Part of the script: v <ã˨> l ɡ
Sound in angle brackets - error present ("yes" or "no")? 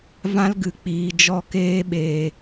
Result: yes